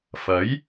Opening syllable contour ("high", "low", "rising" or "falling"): rising